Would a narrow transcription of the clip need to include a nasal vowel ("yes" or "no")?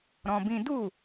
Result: yes